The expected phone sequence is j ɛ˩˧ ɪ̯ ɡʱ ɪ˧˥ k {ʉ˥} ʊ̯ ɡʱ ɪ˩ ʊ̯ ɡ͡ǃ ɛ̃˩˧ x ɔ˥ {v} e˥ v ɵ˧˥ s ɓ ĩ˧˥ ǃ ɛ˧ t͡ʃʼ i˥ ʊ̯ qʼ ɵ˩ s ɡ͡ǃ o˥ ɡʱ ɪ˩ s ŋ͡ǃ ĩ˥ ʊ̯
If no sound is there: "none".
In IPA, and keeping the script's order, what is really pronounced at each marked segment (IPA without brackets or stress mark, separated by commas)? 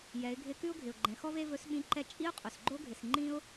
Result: ʉ˥, v